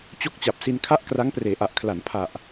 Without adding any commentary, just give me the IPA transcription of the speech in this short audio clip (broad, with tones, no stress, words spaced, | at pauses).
t͡ɕo˦˥k̚t͡ɕa˨˩p̚ si˧nkʰa˥˩ʔkra˦˥ŋpreː˩˦ ʔa˨˩ʔkʰla˩˦n pʰa˨˩ʔ